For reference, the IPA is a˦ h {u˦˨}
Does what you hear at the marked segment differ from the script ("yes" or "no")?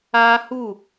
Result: no